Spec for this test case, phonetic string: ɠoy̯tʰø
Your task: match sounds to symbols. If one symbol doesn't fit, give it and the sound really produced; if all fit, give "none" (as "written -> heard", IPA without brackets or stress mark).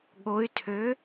none